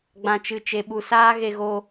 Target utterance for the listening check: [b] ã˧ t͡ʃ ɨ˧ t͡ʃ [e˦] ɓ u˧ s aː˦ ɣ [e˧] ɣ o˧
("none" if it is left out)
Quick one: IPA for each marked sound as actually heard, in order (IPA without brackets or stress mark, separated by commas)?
ɡ͡b, e˧, e˧